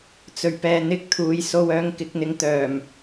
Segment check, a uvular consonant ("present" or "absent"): absent